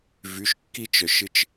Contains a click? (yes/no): no